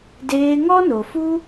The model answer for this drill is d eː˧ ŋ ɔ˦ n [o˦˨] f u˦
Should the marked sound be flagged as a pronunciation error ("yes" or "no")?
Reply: yes